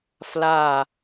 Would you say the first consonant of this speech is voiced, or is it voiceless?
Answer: voiceless